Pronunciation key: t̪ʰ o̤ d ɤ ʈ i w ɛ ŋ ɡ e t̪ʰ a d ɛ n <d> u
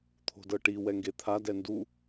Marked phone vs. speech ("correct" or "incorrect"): correct